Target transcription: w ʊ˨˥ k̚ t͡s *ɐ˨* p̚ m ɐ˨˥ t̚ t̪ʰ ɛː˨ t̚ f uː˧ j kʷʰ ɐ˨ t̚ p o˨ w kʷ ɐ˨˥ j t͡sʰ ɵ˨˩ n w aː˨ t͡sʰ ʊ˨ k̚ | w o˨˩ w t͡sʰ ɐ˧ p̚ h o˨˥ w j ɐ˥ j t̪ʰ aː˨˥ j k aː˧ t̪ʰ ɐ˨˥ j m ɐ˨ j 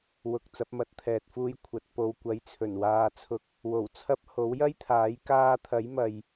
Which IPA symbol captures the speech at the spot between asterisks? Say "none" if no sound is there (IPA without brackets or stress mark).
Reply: ɐ˨˥